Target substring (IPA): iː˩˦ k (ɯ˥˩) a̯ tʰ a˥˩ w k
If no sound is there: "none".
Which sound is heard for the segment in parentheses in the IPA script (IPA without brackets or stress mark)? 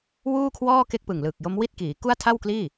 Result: u˥˩